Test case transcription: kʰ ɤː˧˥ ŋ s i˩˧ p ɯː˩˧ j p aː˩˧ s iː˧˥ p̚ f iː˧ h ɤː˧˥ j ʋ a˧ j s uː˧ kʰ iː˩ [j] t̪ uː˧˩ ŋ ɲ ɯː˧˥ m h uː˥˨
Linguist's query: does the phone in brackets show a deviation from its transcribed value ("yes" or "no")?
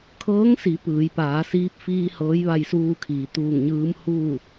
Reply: yes